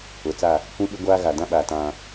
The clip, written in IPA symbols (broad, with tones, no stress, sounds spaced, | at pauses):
ʊ˨ t͡s a˦˨ | kʷ ĩ˦ ɓ ɪ˦ ɡʷ aː˦ ɣ a˨ d ã˦ ɓ aː˨ t ã˦